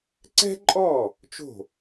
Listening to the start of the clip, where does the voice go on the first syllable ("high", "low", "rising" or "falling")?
high